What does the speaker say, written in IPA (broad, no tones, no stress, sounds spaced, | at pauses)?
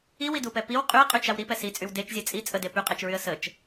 i w i d u p ɛ p i w qʼ y ə̯ qʼ y t͡ʃ a w ɾ i p ɛ s i t͡sʼ y w d e t͡ʃ zʲ ɛ t͡sʼ i t͡sʼ ə d e p y qʼ e t͡ʃ ɹ y ə̯ s ə t͡ʃ